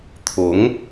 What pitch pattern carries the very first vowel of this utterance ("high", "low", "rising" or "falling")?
rising